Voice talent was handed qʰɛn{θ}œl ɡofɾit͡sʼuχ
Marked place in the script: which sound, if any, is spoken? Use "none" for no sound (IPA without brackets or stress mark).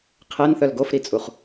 θ